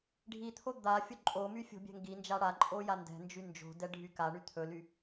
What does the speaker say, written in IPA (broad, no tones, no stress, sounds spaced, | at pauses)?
ɖʱ i t̪ʰ o d̪ a fʲ o ǃʼ o m y fʲ o̤ bʲ ɛ̤ ŋ ɡ i n d͡ʒ a ɽ a ǃʼ o j a n d ɛ̤ n d͡ʒ y n d͡ʒ o̤ d ɛ ɖʱ y k a ɳ y t̪ʰ ɵ l y